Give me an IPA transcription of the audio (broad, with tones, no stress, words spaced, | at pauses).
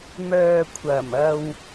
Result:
mœː˨kʷʰɐ˨˩m ɐ˧w